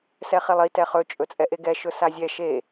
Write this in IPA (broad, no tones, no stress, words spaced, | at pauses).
sɛχilˠi tɛχɵ t͡ʃʼɵt͡sʼɛʔeɡɛ ʃɵsazʲɛ ʃe